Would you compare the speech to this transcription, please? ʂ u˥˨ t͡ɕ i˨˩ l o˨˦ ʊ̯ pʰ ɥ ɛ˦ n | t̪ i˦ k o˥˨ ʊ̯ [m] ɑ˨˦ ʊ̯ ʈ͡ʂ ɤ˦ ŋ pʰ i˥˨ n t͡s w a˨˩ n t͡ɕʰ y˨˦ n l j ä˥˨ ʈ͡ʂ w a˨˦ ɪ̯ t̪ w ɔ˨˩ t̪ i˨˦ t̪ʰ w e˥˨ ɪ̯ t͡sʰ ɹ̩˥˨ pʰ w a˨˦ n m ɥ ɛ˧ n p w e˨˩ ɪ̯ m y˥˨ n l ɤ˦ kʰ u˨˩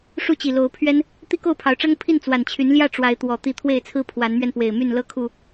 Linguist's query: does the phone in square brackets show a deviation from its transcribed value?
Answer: yes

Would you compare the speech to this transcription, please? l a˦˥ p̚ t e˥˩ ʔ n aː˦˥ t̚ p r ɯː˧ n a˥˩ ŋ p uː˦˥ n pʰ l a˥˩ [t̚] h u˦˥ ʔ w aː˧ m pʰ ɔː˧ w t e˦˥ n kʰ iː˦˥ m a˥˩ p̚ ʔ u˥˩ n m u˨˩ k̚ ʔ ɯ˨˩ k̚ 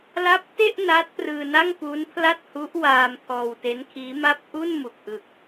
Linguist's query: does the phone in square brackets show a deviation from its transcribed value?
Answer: no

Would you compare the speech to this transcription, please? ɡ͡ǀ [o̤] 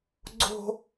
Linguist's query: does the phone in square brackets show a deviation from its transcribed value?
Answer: no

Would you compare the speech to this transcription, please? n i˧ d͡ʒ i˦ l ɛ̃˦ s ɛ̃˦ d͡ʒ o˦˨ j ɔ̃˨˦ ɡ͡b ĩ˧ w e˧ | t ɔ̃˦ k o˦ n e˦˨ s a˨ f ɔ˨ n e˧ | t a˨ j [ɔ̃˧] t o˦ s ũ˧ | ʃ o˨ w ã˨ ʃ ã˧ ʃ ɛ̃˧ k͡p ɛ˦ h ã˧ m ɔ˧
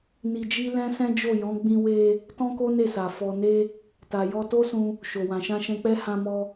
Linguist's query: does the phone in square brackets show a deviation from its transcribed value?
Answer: yes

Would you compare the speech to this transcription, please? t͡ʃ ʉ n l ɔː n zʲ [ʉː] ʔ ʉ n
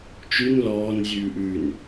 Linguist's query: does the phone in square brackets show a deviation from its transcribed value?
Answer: no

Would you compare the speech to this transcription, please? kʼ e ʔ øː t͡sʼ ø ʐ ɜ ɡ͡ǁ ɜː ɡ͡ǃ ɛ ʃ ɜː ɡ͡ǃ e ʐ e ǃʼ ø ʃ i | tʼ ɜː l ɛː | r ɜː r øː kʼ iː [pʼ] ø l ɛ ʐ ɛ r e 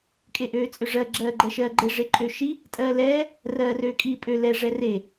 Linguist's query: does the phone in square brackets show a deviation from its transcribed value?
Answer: no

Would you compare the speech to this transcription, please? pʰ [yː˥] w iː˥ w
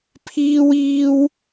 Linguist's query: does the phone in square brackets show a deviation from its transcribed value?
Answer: yes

